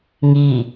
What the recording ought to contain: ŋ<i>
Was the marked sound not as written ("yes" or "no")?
no